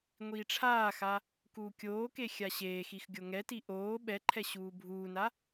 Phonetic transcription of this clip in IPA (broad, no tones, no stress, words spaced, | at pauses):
ŋʷiːʈ͡ʂʰaːxa | kuːkʲoːke xʲaɕeːxix ɡʲoŋɛti ʔoː ɓɛǃʰɛ ɕuːbʱuːna